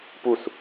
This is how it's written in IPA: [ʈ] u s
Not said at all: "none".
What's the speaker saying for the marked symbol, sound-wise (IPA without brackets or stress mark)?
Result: p